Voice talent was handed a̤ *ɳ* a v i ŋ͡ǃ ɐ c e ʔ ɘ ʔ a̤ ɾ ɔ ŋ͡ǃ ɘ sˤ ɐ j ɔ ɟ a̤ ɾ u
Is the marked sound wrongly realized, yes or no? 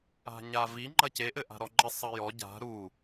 yes